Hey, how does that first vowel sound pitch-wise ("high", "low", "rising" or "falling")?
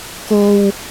low